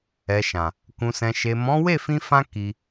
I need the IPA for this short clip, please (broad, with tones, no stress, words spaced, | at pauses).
ɛ˨ʃã˨ | kũ˨sɛ̃˨ʃe˨mɔ̃˨˦ we˦˨fĩ˧fã˧ ki˧